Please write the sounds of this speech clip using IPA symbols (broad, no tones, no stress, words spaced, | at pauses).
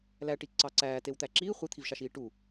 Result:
læʈi ǀɑǀæːtew t̪æǁiː χʷit̪ʰivʃɑʃiː ʈu